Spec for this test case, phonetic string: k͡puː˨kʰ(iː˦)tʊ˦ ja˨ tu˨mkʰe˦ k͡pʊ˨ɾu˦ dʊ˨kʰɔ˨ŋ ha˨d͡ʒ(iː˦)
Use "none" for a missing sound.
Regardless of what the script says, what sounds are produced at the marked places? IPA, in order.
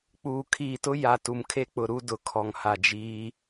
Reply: iː˨, iː˦

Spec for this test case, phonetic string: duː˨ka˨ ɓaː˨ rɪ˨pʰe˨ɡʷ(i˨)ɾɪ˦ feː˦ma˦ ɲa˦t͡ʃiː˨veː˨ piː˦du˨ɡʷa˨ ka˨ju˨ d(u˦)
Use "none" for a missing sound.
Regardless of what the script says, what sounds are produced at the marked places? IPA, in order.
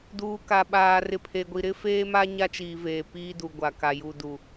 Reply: i˨, u˨

